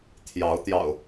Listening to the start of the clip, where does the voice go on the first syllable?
rising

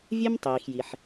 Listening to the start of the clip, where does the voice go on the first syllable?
high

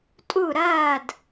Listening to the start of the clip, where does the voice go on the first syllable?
falling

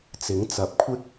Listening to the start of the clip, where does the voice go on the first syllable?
rising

